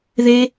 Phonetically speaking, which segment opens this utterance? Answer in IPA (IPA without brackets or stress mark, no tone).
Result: ð